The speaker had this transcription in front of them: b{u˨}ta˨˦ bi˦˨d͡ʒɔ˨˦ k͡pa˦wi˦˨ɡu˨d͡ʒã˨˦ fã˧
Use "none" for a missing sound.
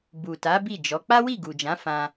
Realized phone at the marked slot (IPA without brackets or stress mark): u˨